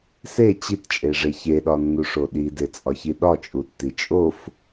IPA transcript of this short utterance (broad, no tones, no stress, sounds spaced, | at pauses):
s e t͡ɕ i t t͡ʃʼ e ʐ e ç e ɗ ɒ nː u ʂ o ɗ i d e t͡sʼ ɒ ç i ɗ ɒ t͡ʃʼ u tː i t͡ʃʼ o f